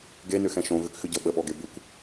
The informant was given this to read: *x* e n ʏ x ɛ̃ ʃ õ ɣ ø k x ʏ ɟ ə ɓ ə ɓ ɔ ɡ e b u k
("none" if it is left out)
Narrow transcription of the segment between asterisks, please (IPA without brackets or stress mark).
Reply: ɡ